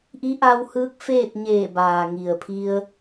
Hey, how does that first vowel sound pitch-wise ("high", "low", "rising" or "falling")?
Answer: rising